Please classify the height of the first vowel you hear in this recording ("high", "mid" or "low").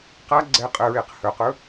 low